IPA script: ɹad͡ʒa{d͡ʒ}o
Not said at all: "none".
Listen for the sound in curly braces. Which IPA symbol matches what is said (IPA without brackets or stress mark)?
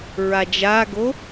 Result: ɡ